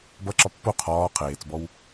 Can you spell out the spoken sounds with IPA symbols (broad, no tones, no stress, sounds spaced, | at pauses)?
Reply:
b ʌ ǁ ɒ pː o qʰ ɒː qʰ eː t͡s b ɔ w